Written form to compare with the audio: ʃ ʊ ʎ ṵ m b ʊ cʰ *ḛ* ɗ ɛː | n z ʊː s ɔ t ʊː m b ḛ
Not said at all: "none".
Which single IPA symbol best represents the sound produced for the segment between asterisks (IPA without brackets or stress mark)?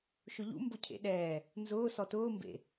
ḛ